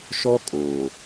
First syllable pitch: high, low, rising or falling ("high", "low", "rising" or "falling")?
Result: high